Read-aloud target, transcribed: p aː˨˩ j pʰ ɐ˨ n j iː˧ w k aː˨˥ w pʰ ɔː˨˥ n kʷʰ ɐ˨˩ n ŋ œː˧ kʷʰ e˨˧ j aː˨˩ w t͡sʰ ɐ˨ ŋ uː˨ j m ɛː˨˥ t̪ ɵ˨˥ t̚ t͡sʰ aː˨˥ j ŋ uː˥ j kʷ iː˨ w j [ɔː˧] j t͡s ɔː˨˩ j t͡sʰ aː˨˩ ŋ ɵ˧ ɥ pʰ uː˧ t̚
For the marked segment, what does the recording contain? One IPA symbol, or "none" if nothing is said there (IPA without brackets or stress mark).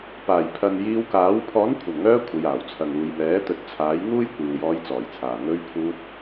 ɔː˧